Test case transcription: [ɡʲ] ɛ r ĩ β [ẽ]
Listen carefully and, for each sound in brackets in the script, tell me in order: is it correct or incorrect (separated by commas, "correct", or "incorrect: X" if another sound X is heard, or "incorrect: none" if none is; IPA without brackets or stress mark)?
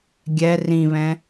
correct, incorrect: ɛ̃